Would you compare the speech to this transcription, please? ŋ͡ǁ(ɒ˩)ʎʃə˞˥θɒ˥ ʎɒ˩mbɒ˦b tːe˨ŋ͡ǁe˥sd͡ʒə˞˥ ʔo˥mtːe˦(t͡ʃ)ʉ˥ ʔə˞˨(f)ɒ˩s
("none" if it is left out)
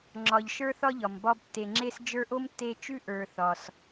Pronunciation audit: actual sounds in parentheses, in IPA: ɒ˨, t͡ʃ, θ

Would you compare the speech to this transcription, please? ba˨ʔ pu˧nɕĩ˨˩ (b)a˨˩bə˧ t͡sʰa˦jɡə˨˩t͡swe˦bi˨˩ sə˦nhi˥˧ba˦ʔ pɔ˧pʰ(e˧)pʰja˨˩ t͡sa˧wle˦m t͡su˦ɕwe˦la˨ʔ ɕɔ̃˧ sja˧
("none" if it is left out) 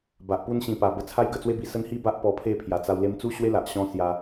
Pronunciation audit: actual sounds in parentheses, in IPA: p, e˥˧

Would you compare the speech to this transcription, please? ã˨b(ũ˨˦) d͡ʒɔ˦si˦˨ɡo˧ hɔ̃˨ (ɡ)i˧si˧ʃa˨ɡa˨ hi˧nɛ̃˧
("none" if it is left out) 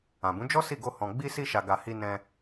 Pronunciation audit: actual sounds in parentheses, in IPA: ũ˨˦, ɡ͡b

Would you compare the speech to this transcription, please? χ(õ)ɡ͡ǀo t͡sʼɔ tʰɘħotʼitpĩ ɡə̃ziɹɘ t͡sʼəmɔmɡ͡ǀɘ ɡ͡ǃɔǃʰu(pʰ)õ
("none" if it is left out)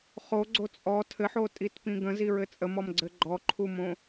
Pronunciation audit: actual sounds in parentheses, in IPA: o, m

